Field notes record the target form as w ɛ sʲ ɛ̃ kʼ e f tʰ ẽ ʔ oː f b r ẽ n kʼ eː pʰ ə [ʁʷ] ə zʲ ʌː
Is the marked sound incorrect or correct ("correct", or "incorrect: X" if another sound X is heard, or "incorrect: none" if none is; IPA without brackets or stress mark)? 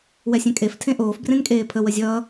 incorrect: w